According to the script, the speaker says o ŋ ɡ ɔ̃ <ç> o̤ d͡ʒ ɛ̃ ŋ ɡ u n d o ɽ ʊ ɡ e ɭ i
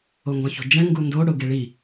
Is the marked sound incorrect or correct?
correct